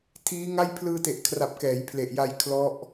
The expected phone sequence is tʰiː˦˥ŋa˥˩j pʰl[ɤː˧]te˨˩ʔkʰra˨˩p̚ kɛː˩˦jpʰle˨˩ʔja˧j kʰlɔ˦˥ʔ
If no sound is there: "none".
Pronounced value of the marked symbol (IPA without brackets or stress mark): ɯː˧